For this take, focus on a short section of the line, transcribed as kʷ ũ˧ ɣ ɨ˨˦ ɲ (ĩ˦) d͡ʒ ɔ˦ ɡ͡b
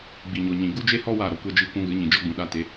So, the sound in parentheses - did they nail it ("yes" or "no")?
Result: no